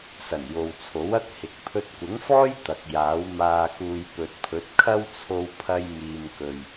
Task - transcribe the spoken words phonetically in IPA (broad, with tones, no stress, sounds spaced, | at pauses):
s ɐ˨˩ n j o˨ w t͡sʰ o˨˥ w ɐ˥ k̚ h ɪ˨˥ k̚ pʰ ɵ˧ t̚ kʷ ɪ˨˥ ŋ f ɔː˥ j t̪ ɐ˨ k̚ j aː˨˥ w m aː˨ k uː˨ j p ɵ˨ t̚ pʰ ɵ˨˥ t̚ kʰ ɐ˥ w t͡sʰ o˧ w pʰ ɐ˧ j m iː˨ m k ɵ˨ ɥ